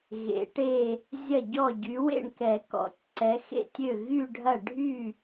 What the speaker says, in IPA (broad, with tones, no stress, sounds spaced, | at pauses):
ɣ ḛ˨˦ ʈ e˥˧ | zʲ ɐ˥˩ ɟ ɔ˥˩ ɟ y˨˦ w ḛ˥˩ ɳ k ɛ˨˩˦ k ɔ̰˨˩˦ tʲ ǀ ɛ˨˦ x ḛ˥˩ tʲ ø˥˩ ɣ y˥˧ ɖʱ ɐ˥˩ ɖʱ y˥˩